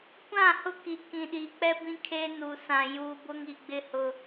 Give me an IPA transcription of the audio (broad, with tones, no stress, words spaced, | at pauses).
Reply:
kʷã˦˨hʊ˦ ki˨kĩ˨ɗiː˨k͡pɛ˦ bĩ˦kʰeː˦ nu˨sã˨ juː˨ bʊ˦ŋi˨ɡ͡bɪ˦ hʊ˦